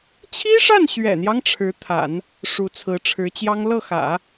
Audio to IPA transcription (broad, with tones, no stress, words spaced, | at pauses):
t͡ɕʰi˥ʂa˥˩nɕɥɛ̰˨˩n̪jɑ˦ŋ ʈ͡ʂʰɻ̩˧˥t̪ʰa̰˨˩˦n | ʂu˧˥t͡sʰɹ̩˧˥ʈ͡ʂʰɻ̩˧˥t͡ɕjɑ˥ŋ lɤ˥˩xä̰˨˩˦